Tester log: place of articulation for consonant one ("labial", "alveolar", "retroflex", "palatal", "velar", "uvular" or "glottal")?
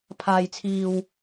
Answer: labial